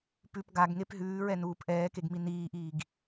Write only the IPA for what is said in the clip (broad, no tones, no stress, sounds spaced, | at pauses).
p ʉ p ɡ a ɡ ŋ e p ɦ ʉː ɹ ɛ n uː p ʔ ɛː k e ɡ m i n iː ʔ iː ɡ